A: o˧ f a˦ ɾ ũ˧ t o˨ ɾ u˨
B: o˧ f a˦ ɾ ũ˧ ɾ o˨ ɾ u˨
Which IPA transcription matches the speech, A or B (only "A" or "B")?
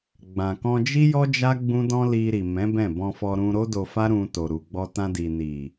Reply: A